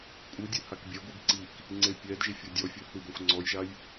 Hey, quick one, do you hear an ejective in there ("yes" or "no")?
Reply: yes